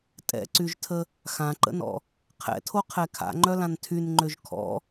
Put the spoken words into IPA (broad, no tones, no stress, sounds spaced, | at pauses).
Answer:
tʼ ɛ̰ ǀ y ʒ tʰ ə | x ã ǃ ə̰ n ɔ̰ | qʰ ɛ̰ tʰ o qʰ ɛ kʰ a̰ ŋ͡ǃ œ l ã n tʰ y n ŋ͡ǃ ø ʒ kʰ ɔ̰